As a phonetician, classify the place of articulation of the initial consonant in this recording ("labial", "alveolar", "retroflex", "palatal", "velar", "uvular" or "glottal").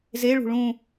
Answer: alveolar